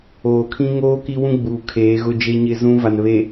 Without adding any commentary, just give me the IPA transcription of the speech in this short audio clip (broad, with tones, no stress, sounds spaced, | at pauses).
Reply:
oː˨ kʰ ĩ˦ ŋ oː˦ k i˦ w ũ˦ ɡ͡b uː˨ kʰ eː˨˦ ɣ ʊ˦ d͡ʒ e˦ ɲ ɪ˦ z ũ˦ v a˨ n β e˨